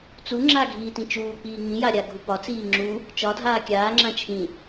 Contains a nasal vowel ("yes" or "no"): yes